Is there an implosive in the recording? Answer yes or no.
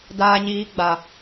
no